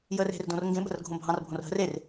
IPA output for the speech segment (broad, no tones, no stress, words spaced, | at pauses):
jəːre̤r dõrŋɡẽ ɓə̤rɡʱõbʱɑ̃r bʱõrɦə̤r er